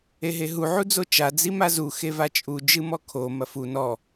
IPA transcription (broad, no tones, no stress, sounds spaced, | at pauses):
e ɦ e ɦ u ʕ u d͡z o t͡ʃ a d͡z i m a z u x e v a t͡ʃʼ u d͡ʒ ɨ m ɔ kʰ o m ɐ f u n ɔ